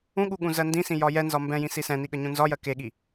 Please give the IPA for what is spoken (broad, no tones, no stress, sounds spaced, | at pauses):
ũ ɠ u ɠ ũ z ɜ n d ĩ s ĩ j ɒ j ɛ n z ɒ m b ɛ̃ j ĩ s i s ɛ̃ n i ɠ ə ɲ ũ n z ɒ j ɜ k e ɠ i